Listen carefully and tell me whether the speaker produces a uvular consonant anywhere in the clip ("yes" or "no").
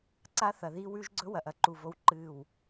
no